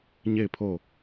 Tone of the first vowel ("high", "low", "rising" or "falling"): falling